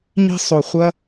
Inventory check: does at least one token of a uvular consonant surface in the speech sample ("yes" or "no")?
yes